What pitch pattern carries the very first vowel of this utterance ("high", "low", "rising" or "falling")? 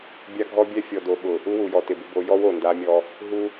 high